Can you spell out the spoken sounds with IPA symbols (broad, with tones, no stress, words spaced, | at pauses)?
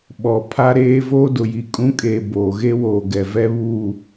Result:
ɓɔ˨ pʰa˦ɾeː˦ voː˦dʊ˨ji˨ kʼũ˦kʼeː˨ boː˨ɣe˦woː˨ɡɛ˨ vɛ˦βuː˦˨